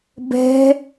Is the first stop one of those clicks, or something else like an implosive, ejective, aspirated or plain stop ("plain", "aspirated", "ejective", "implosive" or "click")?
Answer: plain